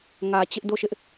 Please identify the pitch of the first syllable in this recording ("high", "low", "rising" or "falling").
low